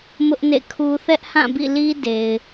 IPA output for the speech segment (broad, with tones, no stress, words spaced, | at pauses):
mʊ˦ʔnḛ˦˨kʰu˦ θɛ˦ʔhã˦˨bḭ˦˨li˦ de˨ɪ̯